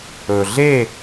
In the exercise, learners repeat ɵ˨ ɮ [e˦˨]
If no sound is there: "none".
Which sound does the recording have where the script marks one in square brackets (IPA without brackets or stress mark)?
e˦˨